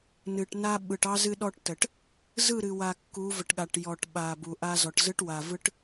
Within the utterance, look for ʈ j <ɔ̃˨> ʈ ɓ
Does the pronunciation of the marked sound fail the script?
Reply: yes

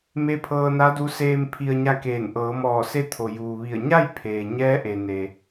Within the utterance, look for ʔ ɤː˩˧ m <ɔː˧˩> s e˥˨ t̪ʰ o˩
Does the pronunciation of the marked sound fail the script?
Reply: no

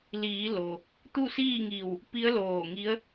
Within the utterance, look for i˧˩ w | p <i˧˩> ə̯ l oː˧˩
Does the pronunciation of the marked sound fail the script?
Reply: yes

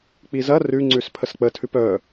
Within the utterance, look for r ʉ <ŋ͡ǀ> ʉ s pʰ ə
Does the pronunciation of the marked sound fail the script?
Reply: no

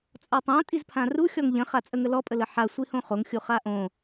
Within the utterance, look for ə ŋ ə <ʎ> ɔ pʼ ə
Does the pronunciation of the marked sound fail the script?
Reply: yes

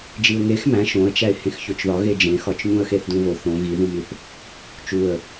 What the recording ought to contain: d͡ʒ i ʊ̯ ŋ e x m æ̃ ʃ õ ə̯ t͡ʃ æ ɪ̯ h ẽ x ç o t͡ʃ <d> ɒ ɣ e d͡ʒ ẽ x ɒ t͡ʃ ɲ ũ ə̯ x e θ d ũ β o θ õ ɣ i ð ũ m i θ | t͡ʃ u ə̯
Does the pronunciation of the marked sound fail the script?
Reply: yes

